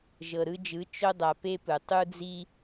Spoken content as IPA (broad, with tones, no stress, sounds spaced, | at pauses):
ʒ ɤ˨ ɾ ɯ˧ d͡ʒ ɯ˨˦ t͡ʃ o˧ dˤ a˨ p e˦ p ɯ˨ tˤ u˦ d͡z i˦